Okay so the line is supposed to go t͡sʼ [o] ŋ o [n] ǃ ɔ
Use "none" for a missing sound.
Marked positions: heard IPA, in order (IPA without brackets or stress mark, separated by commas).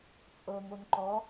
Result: ɤ, n